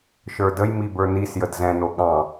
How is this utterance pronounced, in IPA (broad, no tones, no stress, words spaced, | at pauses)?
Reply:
ʃə˞dəjmi bə˞nisjəd zɛ̃no ɠɑ̃